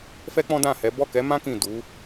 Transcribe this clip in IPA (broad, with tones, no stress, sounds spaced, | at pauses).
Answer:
f ɛ˦ k͡p ɔ̃˦ d ã˦˨ h ɛ˨˦ b ɔ˦˨ k ɛ˨˦ m ã˦ k ĩ˦˨ d u˨˦